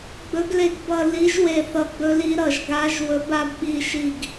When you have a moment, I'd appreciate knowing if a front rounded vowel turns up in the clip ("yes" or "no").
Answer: no